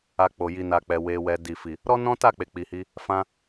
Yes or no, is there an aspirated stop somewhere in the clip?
no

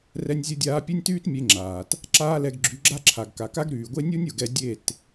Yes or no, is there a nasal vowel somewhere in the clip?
no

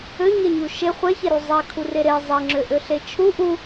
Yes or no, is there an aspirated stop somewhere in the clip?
yes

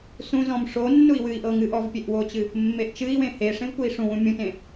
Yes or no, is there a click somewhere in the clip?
no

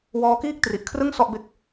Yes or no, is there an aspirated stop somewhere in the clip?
yes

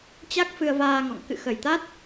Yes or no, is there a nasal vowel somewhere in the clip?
no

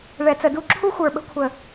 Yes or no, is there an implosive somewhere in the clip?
yes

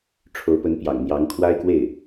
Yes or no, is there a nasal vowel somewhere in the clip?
no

